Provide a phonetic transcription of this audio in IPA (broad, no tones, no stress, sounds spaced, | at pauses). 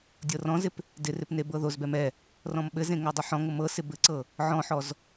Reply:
dʲ ɤ r ɔ̃ z ɪ p | d ɪ r ɪ p n e b ɤ ð o z b ɛ m ɛ | r ɔ̃ m ɓ ɘ z ẽ ŋ o dˤ ɘ ħ ɔ̃ ŋ ɤ m ɤ s ɪ b ɘ ǀ ɤ | ʕ ɔ̃ ħ ɔ z